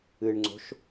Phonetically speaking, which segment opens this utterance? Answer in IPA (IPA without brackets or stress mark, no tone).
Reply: ɨ